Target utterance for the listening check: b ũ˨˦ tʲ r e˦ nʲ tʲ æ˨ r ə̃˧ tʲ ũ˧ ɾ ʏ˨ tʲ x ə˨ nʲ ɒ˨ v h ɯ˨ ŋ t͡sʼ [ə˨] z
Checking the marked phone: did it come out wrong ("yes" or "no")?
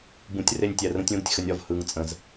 yes